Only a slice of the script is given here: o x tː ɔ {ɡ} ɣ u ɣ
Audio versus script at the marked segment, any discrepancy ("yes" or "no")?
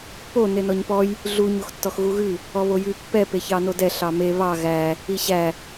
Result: yes